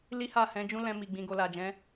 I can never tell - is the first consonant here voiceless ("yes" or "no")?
no